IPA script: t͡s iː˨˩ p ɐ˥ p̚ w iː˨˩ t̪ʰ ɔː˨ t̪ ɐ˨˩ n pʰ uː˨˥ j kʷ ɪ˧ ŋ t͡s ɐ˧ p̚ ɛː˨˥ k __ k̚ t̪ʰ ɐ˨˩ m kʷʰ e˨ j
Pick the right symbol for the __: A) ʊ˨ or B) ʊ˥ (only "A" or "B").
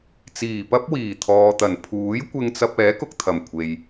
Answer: A